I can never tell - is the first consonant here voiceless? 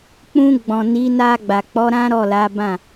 yes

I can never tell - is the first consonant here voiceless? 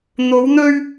no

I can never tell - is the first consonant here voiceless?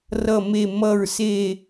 no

